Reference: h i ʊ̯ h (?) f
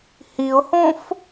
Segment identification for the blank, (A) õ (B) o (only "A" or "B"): A